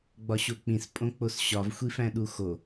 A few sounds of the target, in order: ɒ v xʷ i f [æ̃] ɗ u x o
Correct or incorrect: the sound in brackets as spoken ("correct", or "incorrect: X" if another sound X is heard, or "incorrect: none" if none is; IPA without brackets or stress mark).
correct